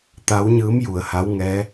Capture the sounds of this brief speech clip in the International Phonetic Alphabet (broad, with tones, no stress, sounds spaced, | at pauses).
t̪ a˧˥ w ɲ ɯː˧˥ m j u˩ ə̯ h a˧˥ w ŋ ɛː˧˥